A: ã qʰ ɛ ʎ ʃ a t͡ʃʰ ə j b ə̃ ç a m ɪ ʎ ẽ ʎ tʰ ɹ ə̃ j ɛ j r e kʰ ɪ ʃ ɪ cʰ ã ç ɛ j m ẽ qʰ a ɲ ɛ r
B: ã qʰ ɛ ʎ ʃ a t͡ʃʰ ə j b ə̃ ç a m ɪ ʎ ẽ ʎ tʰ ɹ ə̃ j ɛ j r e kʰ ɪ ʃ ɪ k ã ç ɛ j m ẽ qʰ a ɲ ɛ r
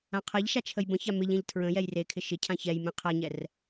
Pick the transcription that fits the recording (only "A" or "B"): A